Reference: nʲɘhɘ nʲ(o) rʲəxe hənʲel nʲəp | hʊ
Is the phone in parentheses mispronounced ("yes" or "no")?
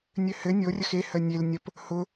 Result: no